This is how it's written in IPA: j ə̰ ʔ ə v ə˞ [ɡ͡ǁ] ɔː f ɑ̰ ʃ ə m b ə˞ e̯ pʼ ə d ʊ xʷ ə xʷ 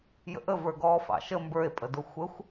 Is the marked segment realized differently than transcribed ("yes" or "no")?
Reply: yes